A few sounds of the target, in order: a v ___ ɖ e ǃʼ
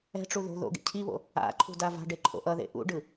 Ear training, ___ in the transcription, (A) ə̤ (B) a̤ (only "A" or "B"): B